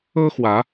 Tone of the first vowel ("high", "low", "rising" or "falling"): high